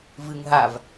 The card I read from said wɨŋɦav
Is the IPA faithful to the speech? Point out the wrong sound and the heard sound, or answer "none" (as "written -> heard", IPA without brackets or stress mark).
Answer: w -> v